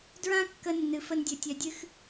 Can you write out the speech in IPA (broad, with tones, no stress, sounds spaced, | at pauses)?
d ɹ ã˦ kː ə˧ nː ɨ˨ f ə˧ n dʲ ɵ˨ tʲ œ˨ dʲ ɨ˧ x